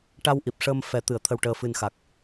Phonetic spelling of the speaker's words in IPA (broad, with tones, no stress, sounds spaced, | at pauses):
ʈ a˧ w ʔ i˨˩ p̚ ʂ əː˧ m f ɛ˨˩˦ t̪ ɨ˨˩˨ ə̯ t̪ʰ ə˨˩ w ʈ əː˨˩ f ɨ˨˩ n x a˨˩ k̚